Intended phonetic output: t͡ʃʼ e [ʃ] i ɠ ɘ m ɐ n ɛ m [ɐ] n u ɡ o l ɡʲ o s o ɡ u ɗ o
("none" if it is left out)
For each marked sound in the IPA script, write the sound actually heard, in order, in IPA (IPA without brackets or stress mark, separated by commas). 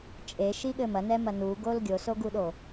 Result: ʃ, ɐ